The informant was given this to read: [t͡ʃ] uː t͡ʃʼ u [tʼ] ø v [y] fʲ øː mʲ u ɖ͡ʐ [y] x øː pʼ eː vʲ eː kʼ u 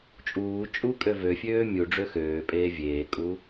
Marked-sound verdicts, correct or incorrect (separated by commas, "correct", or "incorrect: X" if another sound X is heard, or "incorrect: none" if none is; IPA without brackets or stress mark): incorrect: t͡ʃʼ, incorrect: kʼ, incorrect: ø, incorrect: ø